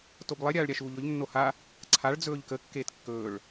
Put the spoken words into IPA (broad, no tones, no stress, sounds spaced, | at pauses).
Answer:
t o b lˠ e ɾʲ aː ɭ ɾʲ a ʃ uː ʎ ɵ ʎ nː o h a | ǀʰ a ɭ d͡z ɵː ʎ k ə kː eː t kː ɵː ɭ